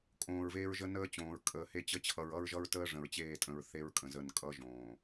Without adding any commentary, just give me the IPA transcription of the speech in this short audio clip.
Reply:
kʼõː˨ɹveː˦ɹʒə˦ nəː˦t͡ɕõː˨ɹ kʼəː˨he˦t͡ɕə˦ t͡ɕʰʌ˨ɹʌ˦ɹʒʌ˦ɹtəː˦ ʐə̃˨ɹt͡ɕeː˦˨tʼə̃˨ɹ θe˦ɹkʼə̃˨zə˦˨n kʼʌ˦ʒõː˨

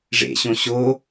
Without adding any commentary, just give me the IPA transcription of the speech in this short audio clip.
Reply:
ʐḛɕõ ɕo

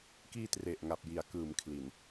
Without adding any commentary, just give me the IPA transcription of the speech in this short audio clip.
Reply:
kiː˧tre˨˩ʔ ŋa˨˩p̚ji˩˦a̯kɯː˩˦m kʰli˨˩n

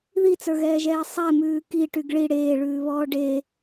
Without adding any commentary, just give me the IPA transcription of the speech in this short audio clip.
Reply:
ðit͡sə˞ɣɛːʒɛː sˤɛmʉː kiʈyɡ ɭi ɽeːɭʉːβɔː ɖe

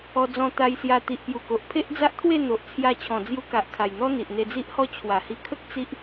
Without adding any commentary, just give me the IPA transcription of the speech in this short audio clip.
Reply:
ɔ˧d͡zɔ̃˧t̪a˧jsja˧ t̪i˨ʔpju˨˩ko˨ʔ pʰe˦ʔd͡za˦ʔt̪ʰwe˥˧ n̪o˨ʔt͡sʰja˧t͡ɕʰɔ̃˨˩ d͡zju˧ka˨ʔ kʰa˨˩jn̪ɔ˦ n̪i˨ʔn̪e˧d͡zi˦ʔhɔ˦ t͡ɕʰwa˨˩hi˧kʰə˦k̚ t͡si˦ʔ

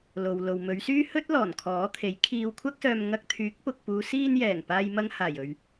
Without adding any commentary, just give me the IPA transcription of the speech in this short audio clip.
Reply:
lo˨w lo˨w mɵ˨˧ɥsyː˥hɵ˥t̚ lɔː˨˩n kʰɔː˨˥t̪ʰe˨˥j kʰiː˧wkʷʰɐ˥k̚sœː˧m ŋɐ˧k̚t̪ʰyː˨˥k̚pʊ˨k̚puː˨˧ siː˧njɛː˨˩ŋ paː˧jmɐ˧ŋhaː˨˩jɵ˨ɥ

